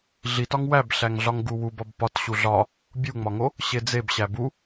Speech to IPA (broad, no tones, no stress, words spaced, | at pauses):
ɮitɒŋ wæbɬæŋɮɒŋ ɡuwubɒb pɒt ɕuɮɒ | bʲuŋ͡mɒŋo | ɕed͡zeb ɕæbu